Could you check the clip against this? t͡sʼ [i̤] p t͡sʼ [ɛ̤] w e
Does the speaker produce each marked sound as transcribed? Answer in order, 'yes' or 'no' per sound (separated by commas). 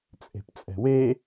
no, yes